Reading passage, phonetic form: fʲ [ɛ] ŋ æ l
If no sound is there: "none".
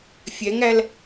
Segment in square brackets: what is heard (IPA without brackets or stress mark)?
ɛ